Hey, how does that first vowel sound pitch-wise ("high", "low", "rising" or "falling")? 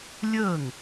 falling